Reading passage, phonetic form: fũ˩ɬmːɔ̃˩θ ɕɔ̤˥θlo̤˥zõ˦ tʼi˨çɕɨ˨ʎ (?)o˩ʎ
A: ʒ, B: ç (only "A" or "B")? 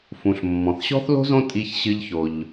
B